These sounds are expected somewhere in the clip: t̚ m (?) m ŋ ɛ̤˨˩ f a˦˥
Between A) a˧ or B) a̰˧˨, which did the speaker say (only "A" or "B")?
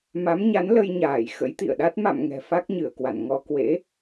B